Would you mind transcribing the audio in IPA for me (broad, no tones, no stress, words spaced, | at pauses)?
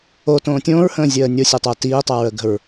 otõː tʲõːɹhə̃ːzʲəː nʲosʲetˤəː tiːtˤəːɹəɡə̤ɹ